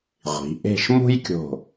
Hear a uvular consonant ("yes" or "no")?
yes